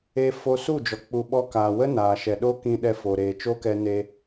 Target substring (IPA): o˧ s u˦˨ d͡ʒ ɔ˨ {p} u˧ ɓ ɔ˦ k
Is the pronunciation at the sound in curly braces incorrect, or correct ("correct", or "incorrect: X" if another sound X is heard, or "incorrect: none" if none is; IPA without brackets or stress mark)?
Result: incorrect: k͡p